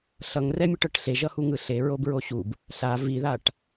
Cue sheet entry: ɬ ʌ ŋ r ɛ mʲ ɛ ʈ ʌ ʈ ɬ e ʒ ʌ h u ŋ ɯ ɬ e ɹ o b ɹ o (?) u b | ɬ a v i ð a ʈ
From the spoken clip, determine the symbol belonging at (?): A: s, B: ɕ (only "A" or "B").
B